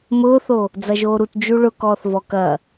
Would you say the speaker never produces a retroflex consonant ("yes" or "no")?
no